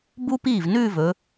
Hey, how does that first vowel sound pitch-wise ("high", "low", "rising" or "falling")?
high